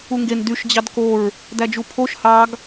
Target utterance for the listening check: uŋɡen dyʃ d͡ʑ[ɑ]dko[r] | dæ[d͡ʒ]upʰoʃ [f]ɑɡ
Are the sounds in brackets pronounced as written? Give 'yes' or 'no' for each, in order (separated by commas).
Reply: yes, no, yes, no